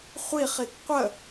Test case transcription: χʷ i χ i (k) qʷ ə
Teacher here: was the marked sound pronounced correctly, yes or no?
yes